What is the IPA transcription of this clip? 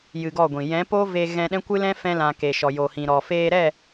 j ɨ˧ ɡ ɔ˦˨ ɡʷ ĩ˨ j ɛ̃˨˦ p o˦ v e˧ ɣ ɛ̃˧ ɗ ɛ̃˦ kʷ ɨ˦ l ɛ̃˦ f ɛ̃˧ l ã˨ k e˨ ʃ ɔ˨ j o˨ h ĩ˨ ɾ ɔ˨ f eː˧ ɾ ɛ˦˨

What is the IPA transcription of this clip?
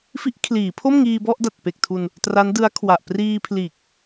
f i˦˥ ʔ kʰ l iː˩˦ pʰ o˥˩ m ŋ iː˧ b ɔ˥˩ ʔ d a˨˩ t̚ p e˨˩ k̚ tʰ u˧ n | t r a˦˥ n d ɯ˦˥ a̯ kʰ w a˨˩ ʔ p r iː˧ pʰ l iː˨˩ k̚

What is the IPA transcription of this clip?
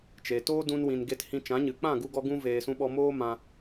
t͡ʃ e˨ t oː˦ d ũ˧ n w ĩ˨ n ɡ e˧ t h ĩ˧ t͡ʃ ã˨˦ ɲ ɨ˨ k͡p ã˦˨ ɡ u˧ ɡ ɔ˧ ɡ ũ˧ v eː˨ s ũ˧ ɓ ɔ˧ m oː˦ m ã˧

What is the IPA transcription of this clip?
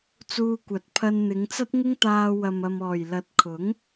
t͡s uː˧ kʷ ɐ˨ t̚ pʰ ɐ˧ n n̪ ɪ˨˧ ŋ t͡s ɐ˥ t̚ ŋ ɪ˥ ŋ t̪ aː˧ w ɐ˨ m ɐ˨ m ɔː˨˩ j l ɐ˨˥ t̚ kʰ ʊ˨˥ ŋ

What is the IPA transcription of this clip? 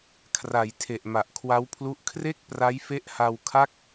kʰ r a˩˦ j tʰ e˨˩ ʔ m a˨˩ ʔ kʰ w a˦˥ w pʰ l u˦˥ ʔ kʰ r e˥˩ k̚ p r a˦˥ j f e˦˥ ʔ h a˧ w kʰ a˥˩ k̚

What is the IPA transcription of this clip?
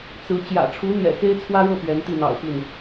t͡s ɹ̩˧˥ t͡ɕ j ä̰˨˩ ʈ͡ʂʰ u˧˥ n̪ j ɛ̰˨˩ x e˥ ɪ̯ t͡sʰ w ä˥ ɻ ɤ˥˩ p ɥ ɛ˧˥ n t̪ i˥˩ n̪ ɑ̰˨˩ ʊ̯ p i˥˩ n

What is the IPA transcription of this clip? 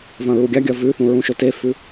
v ɐ̃ ɹ u ɡʲ a ɡʲ ɐ v ʉ θ ũ ɹ ũ ʃ ɵ t e f ʉ

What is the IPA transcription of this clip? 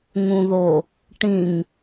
ŋ ũ ð o | ʈ ĩ ŋ

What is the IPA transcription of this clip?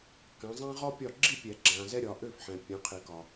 k ã˨˦ zˤ ã˥ ʁ ɔ˥ pʲ ɒ˥˨ ɡ͡ǁ i˥˨ pʲ ɛ˨˩˦ ɡ͡ǁ ã˨ z ɛ˥ ɾʲ ɒ˨˦ ʔ ø˥˨ f ħ ɛ̃˨ pʲ ã˨˦ qʰ i˨˩˦ k ɒ˨

